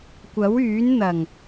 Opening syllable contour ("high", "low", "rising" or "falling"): rising